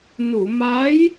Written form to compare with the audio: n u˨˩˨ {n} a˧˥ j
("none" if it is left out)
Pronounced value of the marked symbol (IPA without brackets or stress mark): m